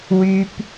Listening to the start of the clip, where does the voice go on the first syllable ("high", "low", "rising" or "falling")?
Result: low